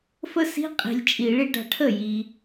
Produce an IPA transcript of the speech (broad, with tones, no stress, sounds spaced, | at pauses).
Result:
f ə˦˥ s i̤˧˥˧ qʼ i̤˨ lʲ t͡ʃʼ i˨˩˦ ɭ i˨˩˦ ɖ a̤˨ ʈʰ ə˥˩ j i˨